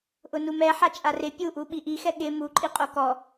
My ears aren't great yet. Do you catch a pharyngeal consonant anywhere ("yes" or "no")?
yes